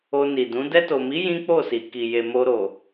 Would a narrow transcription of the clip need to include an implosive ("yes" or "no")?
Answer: no